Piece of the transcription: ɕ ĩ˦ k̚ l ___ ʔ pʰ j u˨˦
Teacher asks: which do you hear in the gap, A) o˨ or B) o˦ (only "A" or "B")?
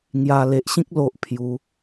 B